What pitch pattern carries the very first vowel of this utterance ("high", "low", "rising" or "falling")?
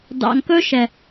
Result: low